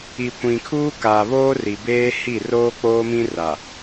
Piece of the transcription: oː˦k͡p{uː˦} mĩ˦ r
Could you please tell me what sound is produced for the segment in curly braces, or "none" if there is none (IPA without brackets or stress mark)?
oː˦